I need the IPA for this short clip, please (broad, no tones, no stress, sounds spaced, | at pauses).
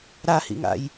ɾ a h ḭ ŋ a̰ j